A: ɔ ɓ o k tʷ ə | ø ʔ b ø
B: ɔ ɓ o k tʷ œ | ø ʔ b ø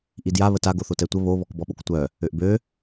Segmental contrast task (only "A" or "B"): B